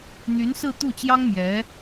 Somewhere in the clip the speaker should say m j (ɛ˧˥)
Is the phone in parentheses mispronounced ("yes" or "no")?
no